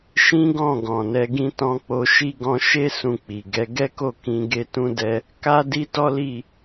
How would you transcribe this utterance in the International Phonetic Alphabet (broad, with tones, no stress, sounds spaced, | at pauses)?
ʃ ĩ˦ ɡ ɔ̃˦˨ ɡ ɔ̃˨ n ɛ˨˦ ɡ ĩ˦ t ɔ̃˧ k͡p o˧ ʃ i˦ ɡ ɔ̃˧ ʃ e˦ s ũ˦˨ k͡p i˨ ɡ ɛ˨˦ ɡ ɛ˦ k o˦˨ k ĩ˧ ɡ e˦ t ũ˦ d ɛ˧ | k a˦ d i˦ t ɔ˦ l i˦˨